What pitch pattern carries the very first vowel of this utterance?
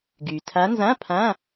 low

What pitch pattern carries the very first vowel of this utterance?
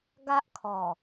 high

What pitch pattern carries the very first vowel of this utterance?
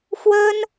high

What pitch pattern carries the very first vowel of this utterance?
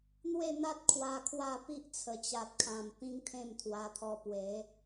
falling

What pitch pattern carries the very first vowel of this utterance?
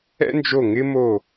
high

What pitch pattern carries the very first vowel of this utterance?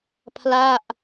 falling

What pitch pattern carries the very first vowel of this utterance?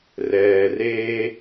low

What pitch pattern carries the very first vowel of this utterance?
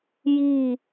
falling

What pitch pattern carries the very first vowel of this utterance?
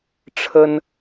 high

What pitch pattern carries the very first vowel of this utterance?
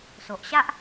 low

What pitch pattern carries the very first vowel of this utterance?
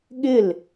falling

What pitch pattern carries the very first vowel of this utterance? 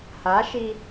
rising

